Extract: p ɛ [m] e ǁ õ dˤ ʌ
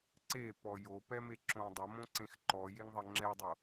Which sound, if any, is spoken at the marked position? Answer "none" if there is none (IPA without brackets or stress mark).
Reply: m